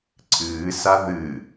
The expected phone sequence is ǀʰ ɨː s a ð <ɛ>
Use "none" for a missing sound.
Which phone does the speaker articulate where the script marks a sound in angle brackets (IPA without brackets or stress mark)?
ɨ